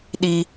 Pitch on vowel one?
high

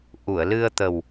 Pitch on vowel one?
low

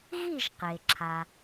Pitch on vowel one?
falling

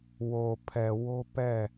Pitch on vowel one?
low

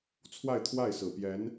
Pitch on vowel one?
falling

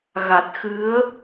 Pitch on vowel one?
low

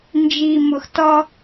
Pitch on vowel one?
low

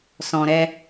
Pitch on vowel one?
low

